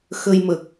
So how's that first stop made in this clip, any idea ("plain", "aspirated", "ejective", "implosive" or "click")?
plain